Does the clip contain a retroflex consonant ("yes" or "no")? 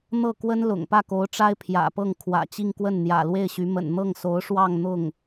yes